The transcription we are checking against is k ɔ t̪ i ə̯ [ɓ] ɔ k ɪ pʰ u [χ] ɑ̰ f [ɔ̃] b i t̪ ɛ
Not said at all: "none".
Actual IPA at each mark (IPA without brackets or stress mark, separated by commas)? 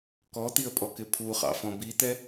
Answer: pʼ, χ, ɔ̃